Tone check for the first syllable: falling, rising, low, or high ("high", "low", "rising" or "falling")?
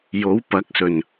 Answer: rising